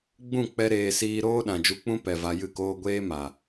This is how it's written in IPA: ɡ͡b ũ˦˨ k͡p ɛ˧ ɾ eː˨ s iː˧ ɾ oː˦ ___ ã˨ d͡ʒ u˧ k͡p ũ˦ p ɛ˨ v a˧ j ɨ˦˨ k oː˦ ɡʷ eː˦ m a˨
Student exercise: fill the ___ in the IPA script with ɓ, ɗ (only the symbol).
ɗ